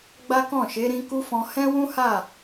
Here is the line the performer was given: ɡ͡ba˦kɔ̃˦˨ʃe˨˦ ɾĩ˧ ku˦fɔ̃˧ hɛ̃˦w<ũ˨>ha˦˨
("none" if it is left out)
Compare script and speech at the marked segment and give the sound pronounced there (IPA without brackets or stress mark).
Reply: ũ˦